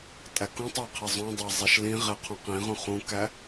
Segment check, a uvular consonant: present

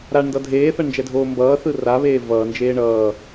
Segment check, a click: absent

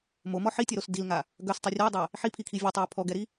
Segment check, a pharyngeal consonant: present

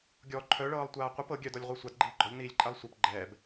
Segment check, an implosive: absent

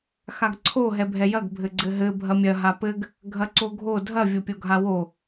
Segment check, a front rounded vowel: absent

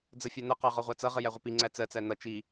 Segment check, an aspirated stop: absent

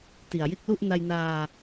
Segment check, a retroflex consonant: absent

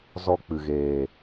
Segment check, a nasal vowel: absent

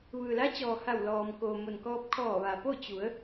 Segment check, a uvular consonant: absent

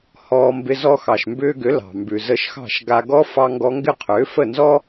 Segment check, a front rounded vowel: present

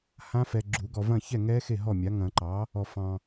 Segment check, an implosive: absent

